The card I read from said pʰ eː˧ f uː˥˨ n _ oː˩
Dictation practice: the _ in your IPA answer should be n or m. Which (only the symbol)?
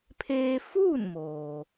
m